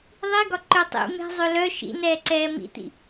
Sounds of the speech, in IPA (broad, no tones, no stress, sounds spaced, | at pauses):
ðˤ i ɡ ɒ ǃ ø tˤ ḭ m e̤ zˤ ø l œ ʃ ḭ n ɛː ǀ ɛː m ḭ t̪ ḭ